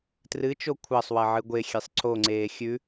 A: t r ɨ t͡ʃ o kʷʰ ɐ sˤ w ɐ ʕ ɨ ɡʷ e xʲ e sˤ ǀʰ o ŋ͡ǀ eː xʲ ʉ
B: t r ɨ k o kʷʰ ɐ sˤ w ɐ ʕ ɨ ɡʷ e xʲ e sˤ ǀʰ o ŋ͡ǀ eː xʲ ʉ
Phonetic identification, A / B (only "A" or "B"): A